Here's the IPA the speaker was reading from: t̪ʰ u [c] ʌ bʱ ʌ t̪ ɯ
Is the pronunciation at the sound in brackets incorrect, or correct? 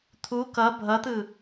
incorrect